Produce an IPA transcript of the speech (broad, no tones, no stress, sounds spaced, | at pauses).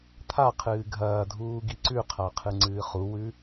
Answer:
t̪ʰ a qʰ ɨː ɡʱ ɐː dʱ uː ɡ i ǀ ʉ qʰ a qʰ ɨ ŋ͡ǀ ɨː χ u w ʉ